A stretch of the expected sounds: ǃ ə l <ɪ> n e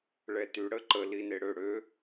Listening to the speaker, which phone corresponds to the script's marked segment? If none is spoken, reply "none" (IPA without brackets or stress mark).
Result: i